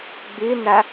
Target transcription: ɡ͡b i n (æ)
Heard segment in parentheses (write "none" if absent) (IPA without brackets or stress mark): æ